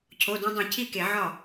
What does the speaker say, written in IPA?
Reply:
cʰo˩˧˩dũ˧dˤĩ˧˩˧ cʰi˥˩ke˧˩˧ʕɒ˥˩

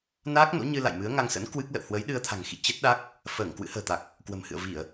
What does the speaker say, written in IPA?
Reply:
naː˦˥k̚no̰˧˥ɲɨ˧ la̰˧˨jmɨ˨˦ə̯ŋa˧ŋsə̰˧˥n kwɨ˦˥k̚lə̰˧˨w hwə˨˦j ɗɨ˧ə̯t̪ʰa̤˨˩ŋ xḭ˧˨ t͡ɕə˦˥t̚ɗa˦˥k̚ | fəː˧˩ŋ kwɨ̰˧˥hə̤ː˨˩t̪a˨˩k̚ | kwə̤˨˩mhɨ̰˧˨ə̯ vi˧˩˨ə̯

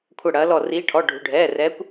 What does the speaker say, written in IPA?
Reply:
kʷʰɐ˦˨ɽɐː˨˦lɔ˦˨ riː˨˦ʈʰɔ˩˧˩ ɖʱṳ˩˧˩ɖʱɛː˩˧˩rɛ˨˦kʷ

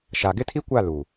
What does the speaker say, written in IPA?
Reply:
ʃa˨ɡɪ˦tʰi˦kʷa˦˨ lu˨

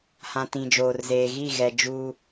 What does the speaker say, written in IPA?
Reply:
hã˨ tĩ˨ d͡ʒoː˨rzeː˨ ɣi˦˨ɣɛ˨ d͡ʒuː˦

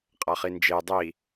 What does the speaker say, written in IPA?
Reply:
qʼaχind͡ʒe dˤi

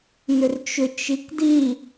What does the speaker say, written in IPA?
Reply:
nʏrt͡ʃʏt͡ʃ ikdi

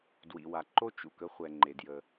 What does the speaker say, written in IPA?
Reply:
dwḭ˩wa˩ǃo˥ t͡ʃṵ˩kə˥χʷɛ˩ ŋ͡ǃe˩djə˩

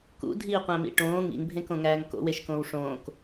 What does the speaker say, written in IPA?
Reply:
kṵdʱiːqʷæ̃mḭ ʈõː ŋḭŋbʱẽkõŋæːŋ ko̰weʃkõːw ʂõːk

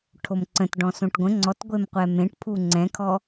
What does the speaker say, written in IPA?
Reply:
ʈʰomǀə̃t ɖɔ̃sõʈɡʷə̃ ŋ͡ǀɔtɡʷemqʷɛ mẽʈpʰu ŋ͡ǀɛ̃kʰɔ

